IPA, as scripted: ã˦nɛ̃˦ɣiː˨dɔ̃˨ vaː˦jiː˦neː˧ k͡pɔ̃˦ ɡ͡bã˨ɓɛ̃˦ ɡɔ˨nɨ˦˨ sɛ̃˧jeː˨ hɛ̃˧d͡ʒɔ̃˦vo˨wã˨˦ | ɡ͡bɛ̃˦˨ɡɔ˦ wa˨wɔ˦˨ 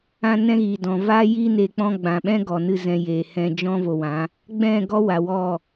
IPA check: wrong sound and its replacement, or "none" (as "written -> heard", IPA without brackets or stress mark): s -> z